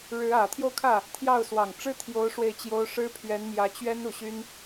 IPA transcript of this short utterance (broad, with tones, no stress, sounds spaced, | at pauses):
ɻ ɻ̩˧˥ ä˨˩ t̪ʰ j o˥˧ ʊ̯ kʰ ä˥˩ | t̪ʰ j ɑ˥˩ ʊ̯ s w ɑ˨˩ ŋ ʈ͡ʂ ɻ̩˥ t̪ʰ j o˧˥ ʊ̯ ʂ w e˥˩ ɪ̯ t͡ɕ j o˥ ʊ̯ ʂ ɻ̩˥ pʰ ɥ ɛ˧˥ n m j ä˧˥ t͡ɕ ɥ ɛ˥ n u˨˩ ɕ y˥ n